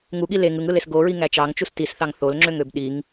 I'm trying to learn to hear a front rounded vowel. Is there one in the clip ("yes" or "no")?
yes